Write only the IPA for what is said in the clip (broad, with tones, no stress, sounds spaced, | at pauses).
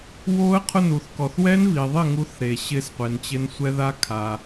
w o˦˥ ə̯ qʰ ʊ˥˩ n u˩ θ k ɔ˩ θ w ɛ˦˥ n v i˩ ðˤ ɪ˥˩ ŋ u˦˥ θ ɾ e˩ ɕ ɪ˦˥ s qʷ e˩ n t͡ɕ ɪ˦˥ n sʷ ɛ˦˥ ð a˦˥ kʰ a˩